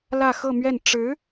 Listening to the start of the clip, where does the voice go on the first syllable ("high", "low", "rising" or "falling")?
falling